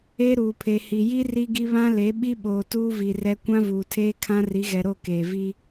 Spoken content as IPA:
e˦ ɾ uː˨ pʰ e˨ h i˨ j i˦ r i˦ ɡ i˦ β ã˦ l e˨˦ ɓ i˦ ɓ oː˨ t uː˦ v i˨ r ɛ˦ kʷ ã˦ v uː˨ tʰ eː˦ kʰ ã˦ r i˨˦ ɣ ɛ˨ ɾ o˦˨ k eː˨ v i˦

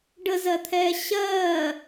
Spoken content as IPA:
ɖ ə z ɜ t̪ʰ ɛː ɕ ɜː

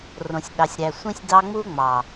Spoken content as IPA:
r õ˨ sʲ ɗ ɑ˨ sʲ ɾ æ˨ sʷ ĩ˧ sʲ d ɑ˦ ŋ͡m u˦ ŋ͡m ɑ˨

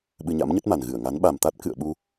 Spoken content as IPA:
ɓ ɨ˧ ɲ a̰˧˥ m ɲ ə˦˥ t̚ m a˨˩ n ɣ ɨ˧˩ ə̯ ŋ a˨˦ n ɓ a˨˩ m t̪ a˦˥ t̚ k ɨ̰˧˨ ə̯ ɓ u˧

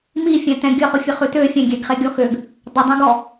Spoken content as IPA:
m i fʲ ɛ̃ t ɛ̃ ɡʲ ə χ ʊ fʲ ə χ ʉ t ø fʲ ɛ̃ ɡʲ ɛ ɡ χ e ɡʲ ɔ x ø ɡ | dˤ ə dˤ ẽ ɡ ɔ

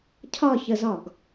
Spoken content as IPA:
cʰ ɒ ç ə z ɒ ɡ

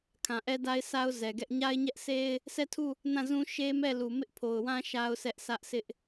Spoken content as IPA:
kʰ ã˨ ʔ ɛ˦ d a˦ ɪ̯ s a˦ ʊ̯ z ɛ˨ ɡ ɛ˦ ʔ ɲ a˦ ɪ̯ ɲ ɛ˦ ʔ s e˦ ɪ̯ | sʰ ɛ˦˨ tʰ u˦˨ | n ã˦˨ z ũ˦ ʃ e˦ m ɛ˦˨ l u˨ m ɪ˦ ʔ pʰ o˨ ʊ̯ w ã˦ ʃ a˦ ʊ̯ s ɛ˦ ʔ s ä˦ ʔ s ɪ˦ ʔ

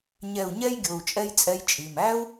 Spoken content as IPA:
ɲ ɛ˧˩ u̯ ɲ ɛ˥ j ɡʲ o˩˧˩ u̯ t͡ʃʼ ɛ˥ j t͡sʼ ɛ˥ j t͡ʃʼ i˩˧˩ m æ˥ u̯

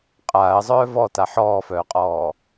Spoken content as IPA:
qʼ aː ə̯ zˤ œː v ɔ t a ħ ɔː f œː qʼ ɔː

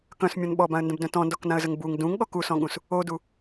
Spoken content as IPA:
k œ̃ s mʲ ɔ̃ n ɓ ɔ b ã ə̯ n d ə̃ b d œ̃ t ɔ̃ n d ɔ k n ã ə̯ z ə ŋ b u ŋ d ũ ŋ ɠ ɔ k u s ɔ̃ ɠ ũ s | o d u

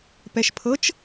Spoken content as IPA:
p ɛ ʃ pʰ ɤ t͡ʃ

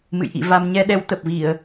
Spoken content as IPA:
m ɨ̰˧˨ j ʔ ḭ˧˨ v a˧ m ɲ ɛ˧ ɗ ɛ˨˦ w t̪ ə˨˩ p̚ v i˧˩˨ ə̯

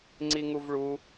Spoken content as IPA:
ŋ͡ǀ i ŋ u v ɭ u

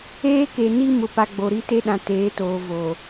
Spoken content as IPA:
eː˦ k e˨ n i˦ m ʊ˨ p a˨ ɡ͡b o˨ ɾ i˦ t e˦ ɗ ã˨ t eː˨˦ t oː˨ v oː˨

